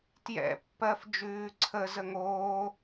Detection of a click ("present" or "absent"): present